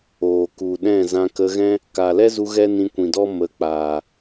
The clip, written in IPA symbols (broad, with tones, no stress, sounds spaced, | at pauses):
oː˨ k u˨ ɗ ɛ̃˦˨ z ã˧ k ə˧ ɣ ɛ̃˦ | k a˨ l ɛ˦ z u˧ ɣ ɛ˦ n ĩ˧ kʷ ĩ˨ d ɔ˦ m ə˨˦ k͡p aː˨